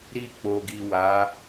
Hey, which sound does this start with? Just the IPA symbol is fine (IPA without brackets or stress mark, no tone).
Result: ɾ